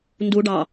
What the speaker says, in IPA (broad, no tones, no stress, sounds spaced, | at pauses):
n d u ɖ ɑ